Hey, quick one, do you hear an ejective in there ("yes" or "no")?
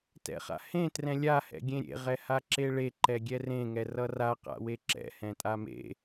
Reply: yes